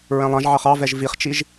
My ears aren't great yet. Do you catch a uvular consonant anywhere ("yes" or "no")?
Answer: yes